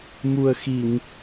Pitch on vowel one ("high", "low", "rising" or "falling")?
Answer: low